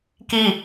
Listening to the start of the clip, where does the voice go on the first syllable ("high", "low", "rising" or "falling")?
falling